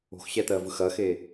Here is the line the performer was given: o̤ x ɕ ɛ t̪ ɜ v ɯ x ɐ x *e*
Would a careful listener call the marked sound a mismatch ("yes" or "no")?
no